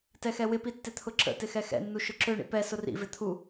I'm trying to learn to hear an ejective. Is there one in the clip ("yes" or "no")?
no